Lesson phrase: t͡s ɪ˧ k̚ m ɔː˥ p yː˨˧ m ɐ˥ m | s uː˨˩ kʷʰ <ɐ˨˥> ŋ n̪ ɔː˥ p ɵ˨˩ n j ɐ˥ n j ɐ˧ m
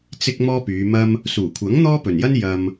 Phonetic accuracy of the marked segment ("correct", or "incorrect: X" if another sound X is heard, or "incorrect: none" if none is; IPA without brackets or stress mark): correct